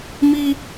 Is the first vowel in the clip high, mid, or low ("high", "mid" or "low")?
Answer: high